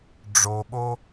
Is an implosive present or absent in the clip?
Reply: present